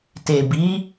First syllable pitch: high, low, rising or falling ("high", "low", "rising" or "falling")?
low